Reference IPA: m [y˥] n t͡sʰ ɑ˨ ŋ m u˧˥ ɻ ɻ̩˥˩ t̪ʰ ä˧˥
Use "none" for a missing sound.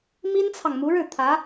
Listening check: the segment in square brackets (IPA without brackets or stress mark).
i˥